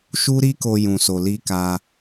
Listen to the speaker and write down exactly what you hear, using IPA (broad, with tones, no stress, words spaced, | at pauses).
ʃu˦ɾi˦ko˧ jũ˨so˨ li˧ka˧